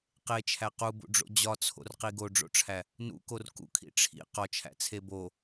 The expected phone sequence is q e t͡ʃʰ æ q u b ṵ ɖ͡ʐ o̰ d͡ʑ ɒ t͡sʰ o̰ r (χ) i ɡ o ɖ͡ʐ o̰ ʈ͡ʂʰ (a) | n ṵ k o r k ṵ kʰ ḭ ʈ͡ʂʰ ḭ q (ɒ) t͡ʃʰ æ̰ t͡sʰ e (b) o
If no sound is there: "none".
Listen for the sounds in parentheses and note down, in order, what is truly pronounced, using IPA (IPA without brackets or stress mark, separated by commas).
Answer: q, æ, ɒ, b